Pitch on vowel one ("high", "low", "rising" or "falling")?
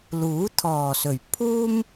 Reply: rising